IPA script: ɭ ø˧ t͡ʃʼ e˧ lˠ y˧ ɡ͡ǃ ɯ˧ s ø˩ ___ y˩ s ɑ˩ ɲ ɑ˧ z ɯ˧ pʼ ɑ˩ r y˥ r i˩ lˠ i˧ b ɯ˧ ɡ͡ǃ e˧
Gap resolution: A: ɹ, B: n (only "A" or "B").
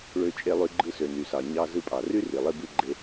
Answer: B